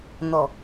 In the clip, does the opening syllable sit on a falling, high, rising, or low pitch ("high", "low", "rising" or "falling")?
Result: low